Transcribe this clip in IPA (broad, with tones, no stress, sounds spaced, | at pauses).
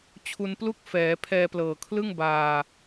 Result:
t͡ɕʰ u˧ n p l u˥˩ k̚ f ɛː˩˦ pʰ ɛː˧ p l ɤː˨˩ kʰ l ɯ˥˩ ŋ b aː˨˩